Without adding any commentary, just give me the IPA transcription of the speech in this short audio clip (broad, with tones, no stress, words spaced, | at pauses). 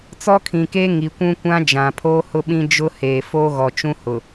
t͡sɔ˦kʰĩ˨keː˦ ŋi˨kʷũ˦kʷã˦ d͡ʒã˨pʰoː˦ hʊ˦ɓĩ˦ d͡ʒʊ˦ heː˨foː˦ɣɔ˨t͡ʃũ˦ hʊ˨